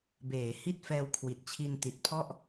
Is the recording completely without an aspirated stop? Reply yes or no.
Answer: no